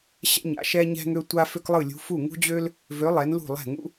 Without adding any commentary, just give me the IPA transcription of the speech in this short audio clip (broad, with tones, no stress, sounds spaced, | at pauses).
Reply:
ɕ ɛ̰˥ ɲ a̰˨˥ ʃ ɛ˥ ɲ ɛ̤˥ ŋ ø˥ tʷ a˥ f ø˥ k lˠ ɯ˥˩ lʲ ṳ˨˥ f u˥˩ ŋ ṳ˥ d͡ʑ ø˥ l | v ø˨˥ lˠ ɛ˨˥ n l ṳ˥˩ lˠ ɛ̤˥˩ ŋ ṵ˥